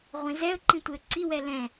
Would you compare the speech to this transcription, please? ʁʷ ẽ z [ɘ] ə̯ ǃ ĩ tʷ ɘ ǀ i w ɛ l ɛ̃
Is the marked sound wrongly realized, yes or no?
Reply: yes